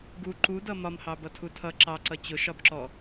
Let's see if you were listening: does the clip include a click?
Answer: yes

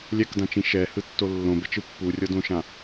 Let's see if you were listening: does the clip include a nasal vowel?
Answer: yes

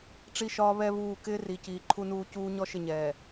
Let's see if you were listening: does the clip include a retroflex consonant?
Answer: yes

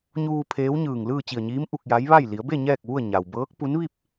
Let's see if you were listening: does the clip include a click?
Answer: no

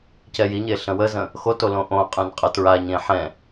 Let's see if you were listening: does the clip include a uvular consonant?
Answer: yes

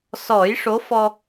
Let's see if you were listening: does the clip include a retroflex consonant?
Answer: yes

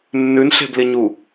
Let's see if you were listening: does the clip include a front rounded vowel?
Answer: no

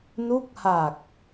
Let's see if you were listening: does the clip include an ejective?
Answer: no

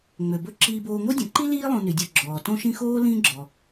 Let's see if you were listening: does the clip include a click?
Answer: yes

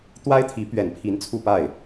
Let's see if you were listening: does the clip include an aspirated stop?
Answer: yes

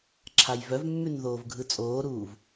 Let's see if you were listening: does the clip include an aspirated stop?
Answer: yes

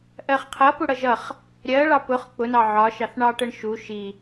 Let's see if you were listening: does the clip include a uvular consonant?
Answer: yes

